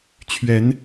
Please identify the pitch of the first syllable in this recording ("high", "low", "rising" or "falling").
rising